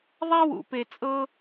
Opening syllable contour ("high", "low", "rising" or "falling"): high